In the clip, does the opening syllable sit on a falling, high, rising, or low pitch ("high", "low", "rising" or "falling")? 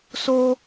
low